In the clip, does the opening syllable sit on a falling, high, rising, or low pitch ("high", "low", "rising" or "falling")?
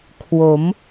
rising